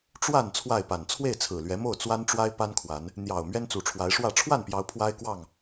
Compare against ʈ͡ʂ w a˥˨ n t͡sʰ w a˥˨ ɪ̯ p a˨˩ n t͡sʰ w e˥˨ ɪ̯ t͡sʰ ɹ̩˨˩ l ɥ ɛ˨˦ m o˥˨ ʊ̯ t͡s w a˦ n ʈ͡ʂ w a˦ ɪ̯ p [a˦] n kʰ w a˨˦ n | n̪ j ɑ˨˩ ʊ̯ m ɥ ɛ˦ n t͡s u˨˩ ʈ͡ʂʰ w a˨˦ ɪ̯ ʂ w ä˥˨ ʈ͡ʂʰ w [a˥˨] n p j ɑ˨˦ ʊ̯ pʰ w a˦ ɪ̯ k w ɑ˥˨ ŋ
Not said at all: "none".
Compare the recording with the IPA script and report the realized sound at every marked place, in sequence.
a˦, a˥˨

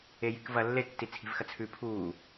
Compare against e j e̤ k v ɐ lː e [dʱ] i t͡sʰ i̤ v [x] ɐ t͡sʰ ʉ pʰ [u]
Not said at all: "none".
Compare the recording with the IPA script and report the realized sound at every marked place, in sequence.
tː, x, uː

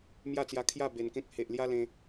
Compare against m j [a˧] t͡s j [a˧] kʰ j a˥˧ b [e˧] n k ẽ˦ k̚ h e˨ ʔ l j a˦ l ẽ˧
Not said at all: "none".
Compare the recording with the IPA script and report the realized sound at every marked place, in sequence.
a˥˧, a˧, e˧

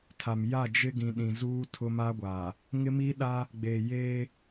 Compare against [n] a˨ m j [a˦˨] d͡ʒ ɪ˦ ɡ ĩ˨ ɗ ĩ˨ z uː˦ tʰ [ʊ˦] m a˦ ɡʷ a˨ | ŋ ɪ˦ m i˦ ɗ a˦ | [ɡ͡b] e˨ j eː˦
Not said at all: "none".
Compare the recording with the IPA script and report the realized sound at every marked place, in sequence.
tʰ, a˦˨, ʊ˦, ɡ͡b

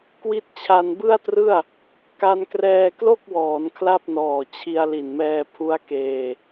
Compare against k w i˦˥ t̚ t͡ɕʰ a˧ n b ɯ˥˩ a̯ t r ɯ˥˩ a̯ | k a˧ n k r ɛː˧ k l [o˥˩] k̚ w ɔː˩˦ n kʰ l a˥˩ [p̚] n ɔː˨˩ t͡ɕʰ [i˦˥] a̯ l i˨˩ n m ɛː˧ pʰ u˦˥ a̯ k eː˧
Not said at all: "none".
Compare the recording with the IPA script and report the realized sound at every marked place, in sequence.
o˥˩, p̚, i˧

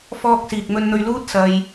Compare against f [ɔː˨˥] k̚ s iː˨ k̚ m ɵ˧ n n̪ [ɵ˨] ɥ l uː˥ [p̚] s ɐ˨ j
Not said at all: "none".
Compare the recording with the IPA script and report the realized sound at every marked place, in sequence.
ɔː˥, ɵ˧, t̚

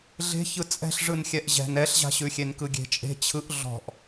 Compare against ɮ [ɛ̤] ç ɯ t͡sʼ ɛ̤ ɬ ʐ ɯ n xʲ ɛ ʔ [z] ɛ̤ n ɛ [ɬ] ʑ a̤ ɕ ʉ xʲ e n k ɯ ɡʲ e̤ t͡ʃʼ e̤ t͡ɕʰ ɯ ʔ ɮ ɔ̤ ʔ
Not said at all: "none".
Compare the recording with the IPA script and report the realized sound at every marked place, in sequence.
e̤, ʑ, ɬ

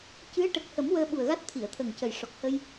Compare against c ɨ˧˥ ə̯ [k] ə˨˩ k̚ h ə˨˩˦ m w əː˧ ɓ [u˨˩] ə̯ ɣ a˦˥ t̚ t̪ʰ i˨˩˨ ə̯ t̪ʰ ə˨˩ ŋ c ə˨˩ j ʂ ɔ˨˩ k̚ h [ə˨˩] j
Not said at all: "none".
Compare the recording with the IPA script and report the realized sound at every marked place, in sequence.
ʈ, u˨˩, ə˧

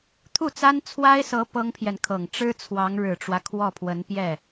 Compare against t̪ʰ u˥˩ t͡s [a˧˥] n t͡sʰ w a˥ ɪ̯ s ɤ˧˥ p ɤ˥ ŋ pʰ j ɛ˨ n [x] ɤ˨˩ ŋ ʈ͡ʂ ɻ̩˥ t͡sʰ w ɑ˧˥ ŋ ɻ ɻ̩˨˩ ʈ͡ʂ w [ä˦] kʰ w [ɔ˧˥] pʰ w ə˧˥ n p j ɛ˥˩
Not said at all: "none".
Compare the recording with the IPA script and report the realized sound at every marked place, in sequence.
a˥, kʰ, ä˦, ɔ˥˩

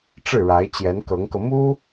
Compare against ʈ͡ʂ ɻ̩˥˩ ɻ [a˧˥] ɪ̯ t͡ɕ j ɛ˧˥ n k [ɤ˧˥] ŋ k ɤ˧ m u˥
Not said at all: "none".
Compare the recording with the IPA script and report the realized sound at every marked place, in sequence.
a˧˥, ɤ˧˥

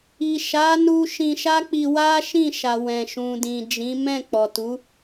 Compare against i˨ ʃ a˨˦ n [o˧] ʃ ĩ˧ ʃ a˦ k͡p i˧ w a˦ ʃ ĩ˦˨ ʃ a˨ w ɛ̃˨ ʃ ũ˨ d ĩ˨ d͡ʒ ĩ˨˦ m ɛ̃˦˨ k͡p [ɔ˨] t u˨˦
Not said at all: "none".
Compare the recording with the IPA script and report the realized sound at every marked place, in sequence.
u˧, ɔ˨

